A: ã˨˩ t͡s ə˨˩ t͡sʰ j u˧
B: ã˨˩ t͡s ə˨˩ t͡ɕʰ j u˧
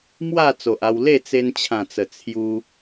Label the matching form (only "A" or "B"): A